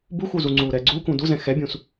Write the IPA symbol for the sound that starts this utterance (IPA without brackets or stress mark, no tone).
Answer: b